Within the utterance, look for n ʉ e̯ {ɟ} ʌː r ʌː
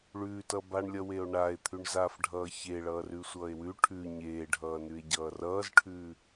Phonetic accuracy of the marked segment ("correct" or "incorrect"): correct